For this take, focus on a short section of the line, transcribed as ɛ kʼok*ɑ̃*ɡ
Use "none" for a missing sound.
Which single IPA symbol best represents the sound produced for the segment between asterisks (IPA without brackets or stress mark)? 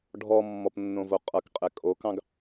ɑ̃